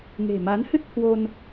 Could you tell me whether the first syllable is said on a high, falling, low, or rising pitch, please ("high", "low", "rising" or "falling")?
low